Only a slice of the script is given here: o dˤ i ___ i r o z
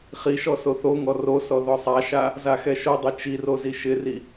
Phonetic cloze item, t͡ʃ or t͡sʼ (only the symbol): t͡ʃ